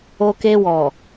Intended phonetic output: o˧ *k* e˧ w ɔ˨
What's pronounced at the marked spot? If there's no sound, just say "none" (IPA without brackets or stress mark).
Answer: k